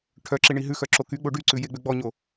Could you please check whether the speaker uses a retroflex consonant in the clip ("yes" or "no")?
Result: yes